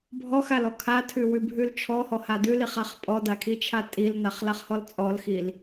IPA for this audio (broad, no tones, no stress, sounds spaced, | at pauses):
bʱ ɔ x a l ɔ kʰ a tʰ ʉ w ʉ bʱ ʉ l t͡ʃʰ ɔ h ɔ h a d ʉ l i χ a χ pʼ ɔ d a kʰ i t͡ʃʰ a tʼ i l n a χ l a χ h ɔ l t͡sʼ ɔ l x i l